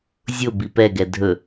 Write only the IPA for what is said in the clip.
zʲ ʊ b i p ɛ ɡ ɛ dʱ ɵ

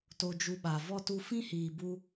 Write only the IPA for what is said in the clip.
t o˧ d͡ʒ u˧ ɓ a˨ v ɔ˦ t u˧ f ĩ˦ h iː˨ b u˧

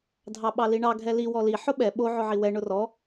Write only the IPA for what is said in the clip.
dʱ ɑ ɓ ɑ l i ɳ ɑ ɡʱ ɛ l i w ɔ l i ħ ʊ ɓ ɛ ɓ o ʕ ʊ ʕ i w ɛ ɳ ʊ r ɔ

